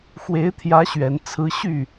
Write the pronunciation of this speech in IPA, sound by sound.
x w e˧˥ ɪ̯ t̪ʰ j ä˧˥ ɕ ɥ ɛ˨˩ n t͡sʰ ɹ̩˧˥ ɕ y˥˩

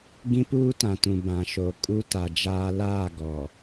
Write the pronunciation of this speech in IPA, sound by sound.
ɡ ĩ˦ p uː˦ t ã˨ t ũ˨ b ã˨ ʃ o˨ kʼ u˦ t a˨ d͡ʒ aː˦ l aː˦˨ ɡ ɔ˨

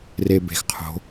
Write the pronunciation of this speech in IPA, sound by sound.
r e˨ b e̤˨ x qʰ o̤˨˦

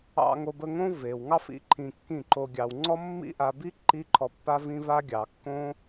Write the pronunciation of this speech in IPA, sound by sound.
ɑ̰˧ ŋ o˧ b ə˧ ŋ õ˦ v e˨ w ŋ ɑ˦ f ḭ˨˦ ǃʰ ĩ˨ kː ĩ˦˨ ǃ o˧ ɡʲ ɑ˨ w ŋ͡ǀ ɔ˦ mː ḭ˦ ʔ a˧ b i˦ ǃ i˦ ǃʰ ɔ˧ pː a˦ v ĩ˦ v a˦ ɡʲ ɑ˨ kː õ˦

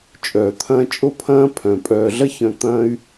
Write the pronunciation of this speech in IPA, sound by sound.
t͡ʃʼ œː˨ t̪ʰ ɐ̃ː˦ t͡ʃʼ o˦ pʰ ɐ̃ː˦ pʰ œ̃˨ pʼ œː˨ ɮ ɐ˦ ç œ̃˧ t̪ ɐ̃˦ y̯

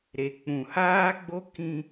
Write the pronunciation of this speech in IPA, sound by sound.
ɾ e˨ k͡p ũ˨ h aː˦ ɡ͡b o˦ k ĩ˦

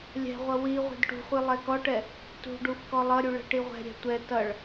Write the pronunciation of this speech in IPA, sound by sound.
lʲ ɛ̤ ʁʷ ʌ w i ʁʷ ɛ̤ d ʈ ṳ χʷ i lˠ ɛ k ɔ ʈ ɛ | t ṳ ɖ u f k ɔ lˠ ʌ ɾʲ u ɭ ɛ̤ ʈ i ʁʷ ɛ̤ ɾʲ ɛ̤ tʷ ɛ t ʌ ɭ

